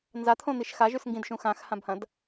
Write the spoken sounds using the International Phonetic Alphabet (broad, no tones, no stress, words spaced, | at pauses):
nzat̪ʰõn̪iʃ xaʒʉs ŋɡĩdʃũ xãxhãbhɐ̃d